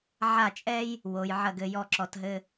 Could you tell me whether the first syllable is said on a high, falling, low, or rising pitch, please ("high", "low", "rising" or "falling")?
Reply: falling